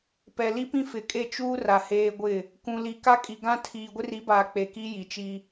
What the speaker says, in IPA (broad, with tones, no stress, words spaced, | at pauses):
pɛ˨li˦pĩ˦ fɪ˨kʼe˦˨ t͡ʃuː˦r a˨heː˦ ɡʷɪ˦˨ | kũ˨li˨ ka˦kʼi˨ɡã˦ tʰiː˨ɡʷɪ˦ri˨˦baː˨ k͡pe˨ki˦ ji˨t͡ʃi˦